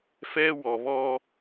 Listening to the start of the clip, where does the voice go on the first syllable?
high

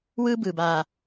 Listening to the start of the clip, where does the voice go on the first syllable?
high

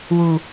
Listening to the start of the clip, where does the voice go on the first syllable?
low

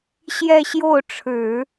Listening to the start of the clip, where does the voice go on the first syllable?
falling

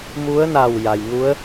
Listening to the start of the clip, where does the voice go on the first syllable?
rising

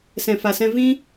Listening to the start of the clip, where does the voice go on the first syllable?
low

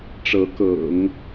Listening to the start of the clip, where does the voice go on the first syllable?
rising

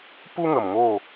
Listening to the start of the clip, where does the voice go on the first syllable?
high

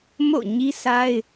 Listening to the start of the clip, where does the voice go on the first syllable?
falling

